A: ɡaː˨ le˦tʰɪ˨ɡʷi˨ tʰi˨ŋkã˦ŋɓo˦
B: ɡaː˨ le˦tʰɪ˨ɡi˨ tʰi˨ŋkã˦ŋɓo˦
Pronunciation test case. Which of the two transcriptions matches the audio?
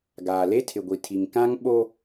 A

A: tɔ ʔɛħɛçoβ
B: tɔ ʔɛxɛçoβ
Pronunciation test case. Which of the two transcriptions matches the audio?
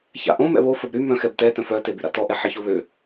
A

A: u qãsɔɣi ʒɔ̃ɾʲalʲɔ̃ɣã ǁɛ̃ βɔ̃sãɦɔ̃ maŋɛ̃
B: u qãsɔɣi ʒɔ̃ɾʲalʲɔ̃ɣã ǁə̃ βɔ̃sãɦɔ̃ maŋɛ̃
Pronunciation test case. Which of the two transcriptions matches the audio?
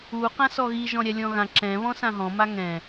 A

